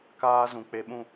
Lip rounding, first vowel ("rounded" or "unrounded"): unrounded